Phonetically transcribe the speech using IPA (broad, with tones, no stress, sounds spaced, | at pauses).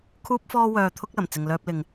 kʰ uː˥ p̚ f ɔː˥ w œː˧ t̪ʰ ʊ˥ k̚ l ɐ˨˩ m t͡s ɪ˨ ŋ l œː˧ p̚ l ɪ˨ ŋ